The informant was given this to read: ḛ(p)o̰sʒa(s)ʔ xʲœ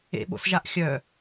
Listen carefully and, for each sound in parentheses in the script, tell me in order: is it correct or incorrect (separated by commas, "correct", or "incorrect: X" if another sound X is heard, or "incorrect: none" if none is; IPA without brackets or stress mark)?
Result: incorrect: ɓ, incorrect: none